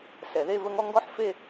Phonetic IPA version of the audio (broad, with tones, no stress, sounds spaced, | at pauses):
s ɛ˩ ð e˥˩ v ə˧ ŋ ɔ˥˩ ŋ ɡ ɔ˥ ħ f e˥˩